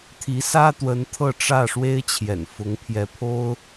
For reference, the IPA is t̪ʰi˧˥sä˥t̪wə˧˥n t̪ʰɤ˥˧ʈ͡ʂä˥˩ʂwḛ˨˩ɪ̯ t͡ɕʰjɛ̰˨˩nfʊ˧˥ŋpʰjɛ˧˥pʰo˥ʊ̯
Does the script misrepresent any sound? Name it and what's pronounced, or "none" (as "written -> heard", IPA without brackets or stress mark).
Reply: ḛ˨˩ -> e˥